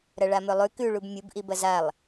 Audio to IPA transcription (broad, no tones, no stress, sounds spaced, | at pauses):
ɾ ɐ ɭ a m ɵ lˠ ʉ k ʉ ɭ u b mʲ u b ʔ i b ɐ z a lˠ